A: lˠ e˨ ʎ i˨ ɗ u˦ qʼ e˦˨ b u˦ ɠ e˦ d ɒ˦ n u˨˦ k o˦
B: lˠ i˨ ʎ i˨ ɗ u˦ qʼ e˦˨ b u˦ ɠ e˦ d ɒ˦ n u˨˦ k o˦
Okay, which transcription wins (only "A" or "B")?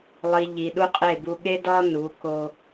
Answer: B